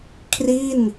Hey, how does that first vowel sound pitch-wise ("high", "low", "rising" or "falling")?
falling